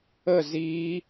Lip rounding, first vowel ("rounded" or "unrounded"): unrounded